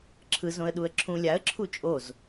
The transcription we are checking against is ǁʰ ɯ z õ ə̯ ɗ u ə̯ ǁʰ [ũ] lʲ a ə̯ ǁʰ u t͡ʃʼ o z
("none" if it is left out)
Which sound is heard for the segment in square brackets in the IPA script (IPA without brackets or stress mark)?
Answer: ũ